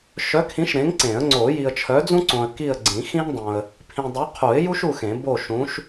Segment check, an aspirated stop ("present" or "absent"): present